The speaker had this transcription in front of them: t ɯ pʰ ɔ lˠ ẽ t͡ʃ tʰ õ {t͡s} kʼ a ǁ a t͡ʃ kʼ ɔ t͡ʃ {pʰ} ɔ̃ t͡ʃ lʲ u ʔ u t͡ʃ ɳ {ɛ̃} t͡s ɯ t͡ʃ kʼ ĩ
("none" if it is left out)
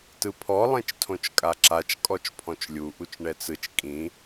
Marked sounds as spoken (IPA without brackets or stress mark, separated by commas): t͡ʃ, pʰ, ɛ